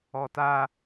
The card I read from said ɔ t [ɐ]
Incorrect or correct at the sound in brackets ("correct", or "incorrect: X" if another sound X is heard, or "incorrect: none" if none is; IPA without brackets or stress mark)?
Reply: incorrect: a